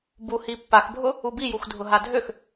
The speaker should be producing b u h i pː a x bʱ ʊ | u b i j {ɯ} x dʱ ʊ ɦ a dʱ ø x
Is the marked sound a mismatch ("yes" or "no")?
yes